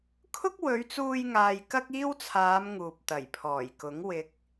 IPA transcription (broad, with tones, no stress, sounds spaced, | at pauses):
kʰ ʊ˥ k̚ w ɵ˨˧ ɥ t͡s uː˧ j ŋ aː˨ j k ɐ˥ k̚ iː˥ w t͡sʰ aː˨˧ m ŋ uː˨ p̚ t̪ ɐ˨˩ j pʰ ɔː˨˩ j k ʊ˨˥ ŋ w ɪ˨˥ k̚